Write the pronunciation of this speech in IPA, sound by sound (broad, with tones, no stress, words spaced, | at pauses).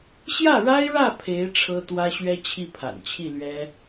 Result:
ɕjä˥˩ɻa˥ɪ̯ɻä˥˩ pʰe˧˥ɪ̯ ʈ͡ʂʰɤ˥t̪wä˥ɕɥɛ˥ t͡ɕʰi˥˩pʰa̰˨˩nt͡ɕʰi˥˩lɥɛ˥